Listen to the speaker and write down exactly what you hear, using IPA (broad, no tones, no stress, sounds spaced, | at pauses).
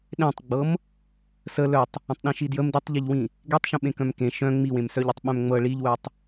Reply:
ɗ ẽ tˤ ɡ͡b ɤ m | s ə l œ tˤ | ə̃ tˤ ɗ ĩ ʃ i d j ə m d i tˤ ʎ i ʎ w ĩ | ɡ e tˤ ʃ ə̃ ɓ ẽ k œ̃ m k ẽ ʃ œ̃ ŋ͡m i w ẽ m s œ ʎ ɤ tˤ ɓ œ̃ m ŋ͡m ɤ ɭ i ʎ w œ tˤ